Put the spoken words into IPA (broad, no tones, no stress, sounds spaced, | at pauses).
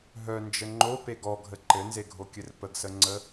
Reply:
ɦ œ n d͡ʒ ə ŋ͡ǃ o p e ɡ ɔ ɡʱ ə ǃ ɘ n z e ɡʱ o kʲ ɘ r p ə ɡ s ə ŋ͡ǀ ə